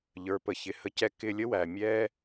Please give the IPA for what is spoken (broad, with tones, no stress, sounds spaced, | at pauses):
ʎ ə˞˨˦ p ə˨ ç ɪ˨ h ə˧ c ɛ˦ k ɪ˧ lʲ ə˦ w æ˨ mʲ ɛ˦